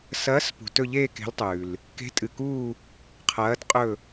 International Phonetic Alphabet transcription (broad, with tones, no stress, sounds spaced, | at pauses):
s ɐː˨˦ s p ṳ˩ t ɵ˦˨ ʎ eː˦˨ k e̤˨˦ l tˤ ʉː˩ l | k e̤˨˦ tʼ ɨ˩ k uː˦˨ | qʰ ɐː˨˦ t qʼ ɵ˦˨